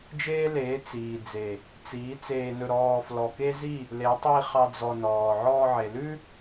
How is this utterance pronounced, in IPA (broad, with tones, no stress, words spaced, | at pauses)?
d͡ʒeː˦leː˨˦ t͡siː˨d͡ze˨ | t͡siː˨˦ t͡seː˧nɵ˧ɾɔː˧ flɔ˨ke˦zi˦˨ | le˨˦ tˤi˧ χɑ˦d͡zɔ˧nɔː˨ ʕɔː˧ʕe˨lʉ˦